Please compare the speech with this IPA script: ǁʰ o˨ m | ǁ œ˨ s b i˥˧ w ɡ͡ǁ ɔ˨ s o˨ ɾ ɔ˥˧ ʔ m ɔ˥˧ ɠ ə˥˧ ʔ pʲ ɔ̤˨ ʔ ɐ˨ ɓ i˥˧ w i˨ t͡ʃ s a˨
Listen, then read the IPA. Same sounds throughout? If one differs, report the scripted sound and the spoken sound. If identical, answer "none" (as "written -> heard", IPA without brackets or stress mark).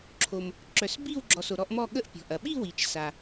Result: none